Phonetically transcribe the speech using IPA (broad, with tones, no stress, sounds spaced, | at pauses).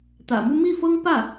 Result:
t̪ ä̰˨˩ m u˥ m i˥˩ f ɤ˥ ŋ p ä˥˩